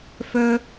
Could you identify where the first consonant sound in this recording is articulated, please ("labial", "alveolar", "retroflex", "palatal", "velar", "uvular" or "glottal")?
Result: labial